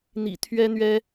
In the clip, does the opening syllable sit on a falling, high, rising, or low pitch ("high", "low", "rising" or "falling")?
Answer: low